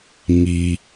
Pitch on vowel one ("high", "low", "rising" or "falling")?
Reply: low